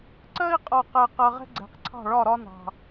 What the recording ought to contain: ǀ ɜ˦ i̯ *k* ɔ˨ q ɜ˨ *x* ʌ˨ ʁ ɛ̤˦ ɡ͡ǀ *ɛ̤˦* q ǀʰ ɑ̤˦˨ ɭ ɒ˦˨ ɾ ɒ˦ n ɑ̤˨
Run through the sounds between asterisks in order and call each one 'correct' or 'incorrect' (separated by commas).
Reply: incorrect, incorrect, incorrect